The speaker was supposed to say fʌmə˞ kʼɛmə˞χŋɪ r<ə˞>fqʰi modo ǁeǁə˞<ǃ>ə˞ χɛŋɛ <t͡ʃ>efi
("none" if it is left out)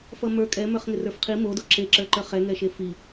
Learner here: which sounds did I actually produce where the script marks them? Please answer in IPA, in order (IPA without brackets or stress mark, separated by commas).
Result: ə˞, ǃ, ʃ